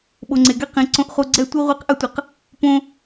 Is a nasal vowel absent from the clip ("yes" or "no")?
no